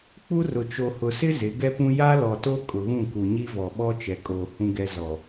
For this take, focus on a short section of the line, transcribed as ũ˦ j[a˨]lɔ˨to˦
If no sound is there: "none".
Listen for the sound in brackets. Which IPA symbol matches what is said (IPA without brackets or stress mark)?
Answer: a˦